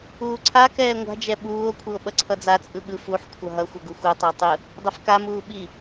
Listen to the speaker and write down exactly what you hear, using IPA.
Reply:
uː ǀʰ a k ɛː ŋʷ a̤ d͡ʒ ɛ ɓ uː o̯ kʷʰ ɯ o̯ ɓ ʌ ǀʰ ʌ d͡z a t͡sʼ ɯ ɠ ɯ f u ħ kʷʰ ʌ ɦ ʌ xʷ ʌ ɡ u xʷ ɯ tˤ ʌ e̯ tˤ ɯ | dˤ ɛ f k a m uː ɓ i

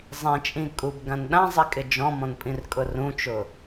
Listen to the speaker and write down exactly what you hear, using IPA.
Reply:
zˤ ĩ t͡ʃʼ ĩ kʼ u b ɡ ã n ɗ ã zˤ i kʼ ɪ d͡ʒ ɔ̃ m ɔ̃ n pʼ ĩ r kʼ ʊ r ũ t͡ʃ ʊ

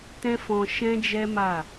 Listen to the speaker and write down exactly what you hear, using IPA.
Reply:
t ɛ̃˦ f ɔ̃˧ ʃ ɛ̃˦ d͡ʒ ɛ˦ m a˦˨

